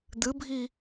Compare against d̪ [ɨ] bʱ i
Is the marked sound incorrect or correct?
correct